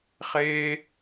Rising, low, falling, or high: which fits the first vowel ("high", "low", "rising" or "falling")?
high